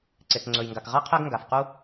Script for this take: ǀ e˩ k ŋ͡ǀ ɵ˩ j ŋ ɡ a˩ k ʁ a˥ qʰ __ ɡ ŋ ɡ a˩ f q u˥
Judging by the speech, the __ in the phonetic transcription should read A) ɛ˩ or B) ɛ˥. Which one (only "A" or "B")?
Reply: B